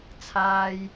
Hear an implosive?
no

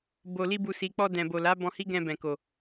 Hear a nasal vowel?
yes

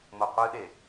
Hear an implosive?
yes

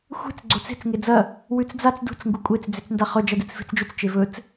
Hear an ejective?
yes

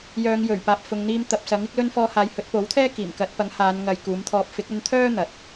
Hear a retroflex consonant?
no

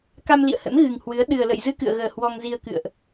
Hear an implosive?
yes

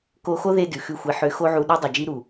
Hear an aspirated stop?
no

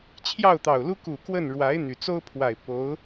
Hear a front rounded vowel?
yes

